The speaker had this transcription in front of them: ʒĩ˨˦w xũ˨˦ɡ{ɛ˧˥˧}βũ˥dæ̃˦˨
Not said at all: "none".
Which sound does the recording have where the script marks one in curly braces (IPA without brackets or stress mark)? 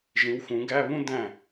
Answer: æ˧˥˧